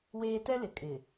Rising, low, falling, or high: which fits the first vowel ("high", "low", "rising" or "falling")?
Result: high